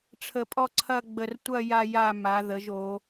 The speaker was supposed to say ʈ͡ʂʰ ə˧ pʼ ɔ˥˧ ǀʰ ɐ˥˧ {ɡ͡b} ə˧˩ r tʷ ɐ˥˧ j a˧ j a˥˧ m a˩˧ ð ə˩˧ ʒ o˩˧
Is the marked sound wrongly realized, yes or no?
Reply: no